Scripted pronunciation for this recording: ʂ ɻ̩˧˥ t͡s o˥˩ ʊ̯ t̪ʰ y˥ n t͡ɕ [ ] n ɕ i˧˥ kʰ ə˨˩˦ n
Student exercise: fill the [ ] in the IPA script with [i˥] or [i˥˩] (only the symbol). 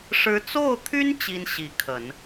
i˥